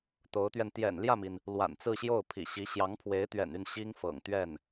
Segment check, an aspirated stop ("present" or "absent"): present